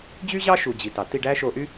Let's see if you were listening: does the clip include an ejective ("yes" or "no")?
no